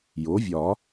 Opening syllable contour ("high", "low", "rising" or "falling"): rising